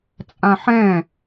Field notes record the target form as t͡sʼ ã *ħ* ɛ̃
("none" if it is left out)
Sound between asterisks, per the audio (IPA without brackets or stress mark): ħ